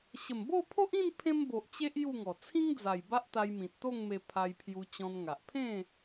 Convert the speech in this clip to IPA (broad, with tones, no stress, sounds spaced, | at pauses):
ɕ ə˨˩ m b o˥˧ pʰ o˦ ʔ ĩ˥˧ n pʰ ẽ˦ m b o˨ ʔ t͡ɕ e˦ ʔ j u˥˧ ŋ ɔ˨˩ t͡sʰ ĩ˦ ŋ d͡z a˨˩ j b a˦ ʔ t̪ a˧ j m ĩ˨ t̚ t̪ o˥˧ ŋ m e˧ pʰ a˧ j pʰ j u˧ t͡ɕ ɔ̃˧ n ŋ a˨ ʔ pʰ ẽ˥˧